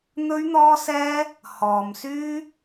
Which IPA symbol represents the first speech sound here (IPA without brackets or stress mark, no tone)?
n̪